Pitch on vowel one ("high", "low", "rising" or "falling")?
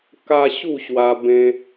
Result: high